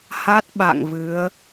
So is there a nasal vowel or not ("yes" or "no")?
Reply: no